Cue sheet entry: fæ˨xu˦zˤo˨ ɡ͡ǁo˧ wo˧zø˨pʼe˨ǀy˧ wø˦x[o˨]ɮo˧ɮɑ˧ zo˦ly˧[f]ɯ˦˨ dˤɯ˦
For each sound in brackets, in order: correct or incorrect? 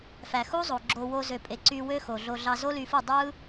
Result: correct, correct

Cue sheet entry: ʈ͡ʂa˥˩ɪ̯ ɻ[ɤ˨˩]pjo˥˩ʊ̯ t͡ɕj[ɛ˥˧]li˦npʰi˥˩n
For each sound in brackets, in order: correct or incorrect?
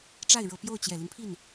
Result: correct, incorrect: ɛ˨˩

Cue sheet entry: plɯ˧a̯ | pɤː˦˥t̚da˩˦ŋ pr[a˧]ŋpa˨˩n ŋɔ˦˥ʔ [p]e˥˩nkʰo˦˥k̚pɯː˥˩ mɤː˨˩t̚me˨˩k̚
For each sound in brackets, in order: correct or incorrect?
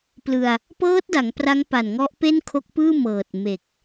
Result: incorrect: a˦˥, correct

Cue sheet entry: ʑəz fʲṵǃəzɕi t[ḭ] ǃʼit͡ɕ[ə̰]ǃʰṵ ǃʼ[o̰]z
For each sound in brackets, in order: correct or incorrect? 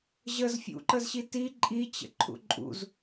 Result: incorrect: i, correct, incorrect: ṵ

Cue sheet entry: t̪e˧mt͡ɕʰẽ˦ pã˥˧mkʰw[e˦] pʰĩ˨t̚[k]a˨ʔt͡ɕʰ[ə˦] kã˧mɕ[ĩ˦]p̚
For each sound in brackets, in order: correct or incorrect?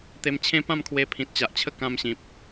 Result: incorrect: e˧, incorrect: t͡ɕ, correct, incorrect: ĩ˨

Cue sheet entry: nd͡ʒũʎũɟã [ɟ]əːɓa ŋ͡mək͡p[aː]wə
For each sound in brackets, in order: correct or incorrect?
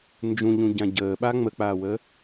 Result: correct, correct

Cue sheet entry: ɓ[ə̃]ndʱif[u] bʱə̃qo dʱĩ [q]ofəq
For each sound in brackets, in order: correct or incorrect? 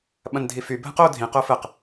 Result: incorrect: ɐ̃, incorrect: y, correct

